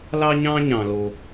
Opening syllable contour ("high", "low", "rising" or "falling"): high